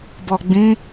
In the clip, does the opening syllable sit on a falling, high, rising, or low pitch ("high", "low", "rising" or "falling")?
low